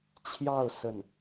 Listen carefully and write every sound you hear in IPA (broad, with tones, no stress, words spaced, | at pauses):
t͡ɕʰjɑ˥˧ʊ̯ sə˥˩n